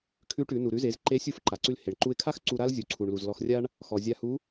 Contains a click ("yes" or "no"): yes